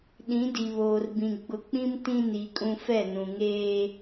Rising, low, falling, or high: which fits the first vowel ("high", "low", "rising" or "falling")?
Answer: rising